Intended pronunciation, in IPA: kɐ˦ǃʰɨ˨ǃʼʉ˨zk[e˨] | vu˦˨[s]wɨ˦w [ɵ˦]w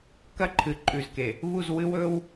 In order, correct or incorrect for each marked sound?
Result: correct, incorrect: z, correct

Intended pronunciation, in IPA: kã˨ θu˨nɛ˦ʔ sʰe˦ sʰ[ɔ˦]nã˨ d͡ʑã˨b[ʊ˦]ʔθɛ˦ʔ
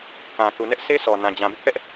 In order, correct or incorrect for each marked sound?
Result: incorrect: ɔ˨, correct

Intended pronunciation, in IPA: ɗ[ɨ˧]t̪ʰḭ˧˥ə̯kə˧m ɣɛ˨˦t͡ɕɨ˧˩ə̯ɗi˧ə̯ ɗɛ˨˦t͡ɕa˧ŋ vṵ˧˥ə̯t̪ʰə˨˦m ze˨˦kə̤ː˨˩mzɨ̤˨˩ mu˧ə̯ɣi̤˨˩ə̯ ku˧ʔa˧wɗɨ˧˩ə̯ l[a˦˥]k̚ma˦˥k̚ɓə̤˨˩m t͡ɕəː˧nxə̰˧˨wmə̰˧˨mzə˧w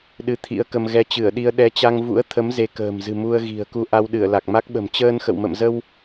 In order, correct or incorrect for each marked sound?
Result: correct, incorrect: a˨˩

